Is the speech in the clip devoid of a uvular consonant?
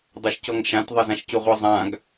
no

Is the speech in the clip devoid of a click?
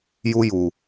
yes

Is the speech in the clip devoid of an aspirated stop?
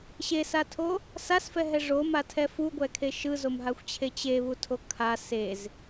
no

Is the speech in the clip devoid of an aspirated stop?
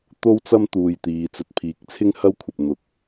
no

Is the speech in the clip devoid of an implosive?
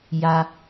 yes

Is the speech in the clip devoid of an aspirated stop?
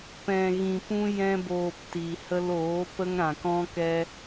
yes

